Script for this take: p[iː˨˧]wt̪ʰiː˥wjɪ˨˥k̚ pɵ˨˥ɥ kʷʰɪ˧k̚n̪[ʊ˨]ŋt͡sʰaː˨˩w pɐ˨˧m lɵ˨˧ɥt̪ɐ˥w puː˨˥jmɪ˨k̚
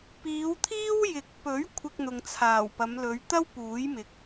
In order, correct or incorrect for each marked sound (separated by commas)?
correct, correct